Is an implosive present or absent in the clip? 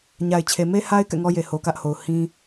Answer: absent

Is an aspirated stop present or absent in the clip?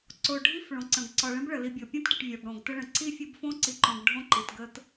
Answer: absent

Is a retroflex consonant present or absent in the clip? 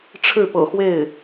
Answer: present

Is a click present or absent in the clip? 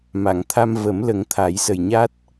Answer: absent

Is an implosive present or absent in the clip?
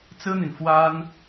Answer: absent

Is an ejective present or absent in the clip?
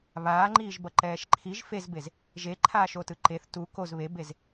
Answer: absent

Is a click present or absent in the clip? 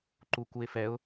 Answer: present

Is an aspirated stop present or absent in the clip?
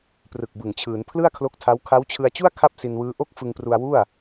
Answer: present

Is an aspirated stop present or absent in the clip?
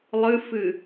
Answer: absent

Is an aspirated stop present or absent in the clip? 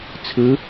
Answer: present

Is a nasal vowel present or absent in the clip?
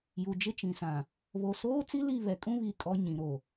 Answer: present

